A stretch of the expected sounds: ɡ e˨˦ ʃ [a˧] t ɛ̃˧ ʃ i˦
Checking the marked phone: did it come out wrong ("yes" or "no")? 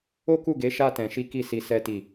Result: yes